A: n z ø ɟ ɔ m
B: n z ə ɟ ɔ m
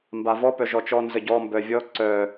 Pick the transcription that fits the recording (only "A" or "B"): B